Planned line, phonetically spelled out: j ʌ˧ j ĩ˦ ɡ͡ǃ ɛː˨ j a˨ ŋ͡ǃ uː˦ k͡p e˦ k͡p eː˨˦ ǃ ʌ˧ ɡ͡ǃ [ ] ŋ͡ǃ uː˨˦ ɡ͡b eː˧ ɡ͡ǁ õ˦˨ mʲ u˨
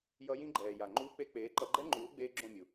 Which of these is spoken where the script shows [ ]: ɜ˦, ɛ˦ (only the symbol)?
ɛ˦